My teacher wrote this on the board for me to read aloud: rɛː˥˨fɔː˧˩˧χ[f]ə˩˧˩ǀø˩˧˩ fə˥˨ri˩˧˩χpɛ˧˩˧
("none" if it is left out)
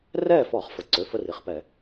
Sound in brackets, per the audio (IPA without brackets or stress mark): f